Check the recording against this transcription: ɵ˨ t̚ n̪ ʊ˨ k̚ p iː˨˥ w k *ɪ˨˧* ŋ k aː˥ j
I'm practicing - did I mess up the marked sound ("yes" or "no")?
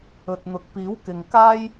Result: yes